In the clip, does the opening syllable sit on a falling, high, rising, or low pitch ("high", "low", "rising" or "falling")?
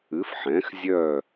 rising